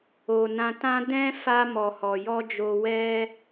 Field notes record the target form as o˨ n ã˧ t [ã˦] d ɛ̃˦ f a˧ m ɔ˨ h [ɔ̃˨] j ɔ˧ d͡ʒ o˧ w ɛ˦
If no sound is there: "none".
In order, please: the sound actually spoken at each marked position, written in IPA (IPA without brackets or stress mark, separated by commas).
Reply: ã˦, ɔ˨